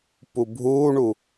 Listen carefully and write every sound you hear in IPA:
p u bʱ uː ɳ u

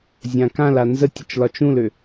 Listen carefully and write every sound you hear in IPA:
zʲ ã k ã l a n z ə tʲ ə t͡ʃ l ɒ t͡ʃ ũ l ø

